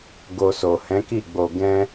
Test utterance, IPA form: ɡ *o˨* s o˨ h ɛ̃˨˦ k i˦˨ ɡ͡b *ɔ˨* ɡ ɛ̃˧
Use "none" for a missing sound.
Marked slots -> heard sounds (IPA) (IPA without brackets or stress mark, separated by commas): o˧, o˨